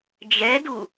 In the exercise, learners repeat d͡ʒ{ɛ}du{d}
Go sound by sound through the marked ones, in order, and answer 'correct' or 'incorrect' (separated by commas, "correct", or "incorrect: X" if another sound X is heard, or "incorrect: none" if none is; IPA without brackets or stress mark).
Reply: correct, incorrect: none